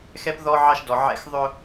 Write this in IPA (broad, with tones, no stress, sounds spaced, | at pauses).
x ɛ˦ p ð ɔ˦ ʕ ɑ˦ ʃ d ɔ˨ ʕ ɛ̰˦ x ðˤ ʊ˦